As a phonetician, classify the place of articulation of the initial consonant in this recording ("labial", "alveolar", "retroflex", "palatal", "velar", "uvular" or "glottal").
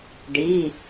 retroflex